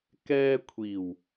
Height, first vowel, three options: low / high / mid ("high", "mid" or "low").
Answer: mid